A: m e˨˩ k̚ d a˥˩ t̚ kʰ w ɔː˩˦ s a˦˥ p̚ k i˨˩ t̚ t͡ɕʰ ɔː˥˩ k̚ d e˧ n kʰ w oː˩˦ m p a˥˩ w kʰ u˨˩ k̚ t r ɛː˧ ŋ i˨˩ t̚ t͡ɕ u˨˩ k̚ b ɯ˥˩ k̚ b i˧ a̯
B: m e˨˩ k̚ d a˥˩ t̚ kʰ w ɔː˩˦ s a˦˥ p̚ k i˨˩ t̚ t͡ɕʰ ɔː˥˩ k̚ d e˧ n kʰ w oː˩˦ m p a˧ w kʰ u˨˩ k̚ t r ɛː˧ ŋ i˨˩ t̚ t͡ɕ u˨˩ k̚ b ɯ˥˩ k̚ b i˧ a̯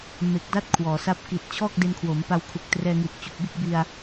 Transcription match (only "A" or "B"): B